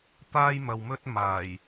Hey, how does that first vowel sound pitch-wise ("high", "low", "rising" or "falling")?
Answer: high